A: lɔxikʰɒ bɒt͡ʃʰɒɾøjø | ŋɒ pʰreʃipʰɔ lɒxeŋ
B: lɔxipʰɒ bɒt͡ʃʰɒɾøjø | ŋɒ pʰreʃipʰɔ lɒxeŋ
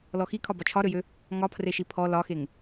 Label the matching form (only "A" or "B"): A